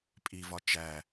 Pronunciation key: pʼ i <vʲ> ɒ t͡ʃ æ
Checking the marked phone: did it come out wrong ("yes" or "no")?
yes